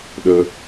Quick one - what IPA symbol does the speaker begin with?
ɗ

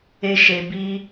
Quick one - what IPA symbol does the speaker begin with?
e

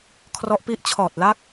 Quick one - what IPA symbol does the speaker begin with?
kʰ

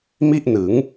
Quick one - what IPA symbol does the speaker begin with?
m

